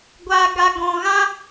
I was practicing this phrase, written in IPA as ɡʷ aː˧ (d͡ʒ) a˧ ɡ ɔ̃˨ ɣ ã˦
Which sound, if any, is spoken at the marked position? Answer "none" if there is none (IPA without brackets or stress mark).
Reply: ɡ